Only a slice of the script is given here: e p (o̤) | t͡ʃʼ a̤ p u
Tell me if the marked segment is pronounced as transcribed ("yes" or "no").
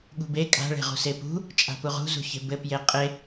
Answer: no